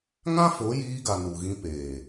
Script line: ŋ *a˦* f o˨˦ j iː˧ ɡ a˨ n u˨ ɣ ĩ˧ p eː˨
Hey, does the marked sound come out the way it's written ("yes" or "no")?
no